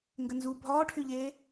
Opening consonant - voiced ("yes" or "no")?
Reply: yes